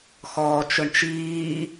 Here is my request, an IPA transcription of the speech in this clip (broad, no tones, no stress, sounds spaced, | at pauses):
x ɔː t͡ʃ ʊ ɳ t͡ʃ iː